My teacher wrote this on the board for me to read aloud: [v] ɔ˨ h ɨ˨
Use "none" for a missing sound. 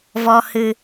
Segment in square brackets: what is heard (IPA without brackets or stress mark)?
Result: v